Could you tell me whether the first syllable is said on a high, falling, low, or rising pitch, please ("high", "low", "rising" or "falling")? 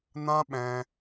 high